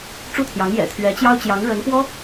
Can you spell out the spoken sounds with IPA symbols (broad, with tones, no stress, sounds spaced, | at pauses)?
ʈ͡ʂ u˥˩ t̪ʰ j ɑ˧˥ ŋ j ɛ̰˨˩ t̪ʰ ɥ ɛ˧˥ t͡ɕ j ɑ˥ ʊ̯ t͡ɕ j ɑ˧˥ ŋ ɻ ə˧˥ n p w ɔ˥